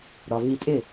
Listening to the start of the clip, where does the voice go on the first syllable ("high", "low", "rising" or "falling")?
low